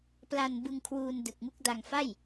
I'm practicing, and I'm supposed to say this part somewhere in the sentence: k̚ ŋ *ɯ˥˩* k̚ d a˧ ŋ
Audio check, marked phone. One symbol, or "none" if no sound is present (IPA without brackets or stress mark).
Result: u˥˩